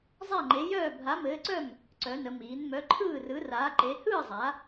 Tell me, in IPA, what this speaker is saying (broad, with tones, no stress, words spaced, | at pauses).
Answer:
zˤa˥˨ŋ͡ǃe˨˥jœː˥˨ bʱa˨˥mɘː˨˥ǀœ˥˨m | ǀœ˩˧nə˩˧ miː˩˧nmœ˨˥ǃʰɯː˥˨rɯ˨˥ raː˨˥ǃe˨˥ hɯː˥˨zˤa˩˧